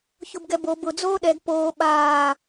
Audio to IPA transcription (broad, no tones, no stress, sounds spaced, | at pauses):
ç ʊ b ɡ ɛ b o b ʊ d͡z oː ɗ ɛ ɡ p oː ɓ aː